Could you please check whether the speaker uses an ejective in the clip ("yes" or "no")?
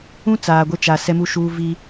no